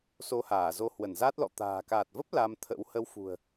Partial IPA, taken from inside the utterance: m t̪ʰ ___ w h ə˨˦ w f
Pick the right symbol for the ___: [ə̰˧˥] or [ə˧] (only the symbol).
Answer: ə̰˧˥